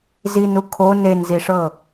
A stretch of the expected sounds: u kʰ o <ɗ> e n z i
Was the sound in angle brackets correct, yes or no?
no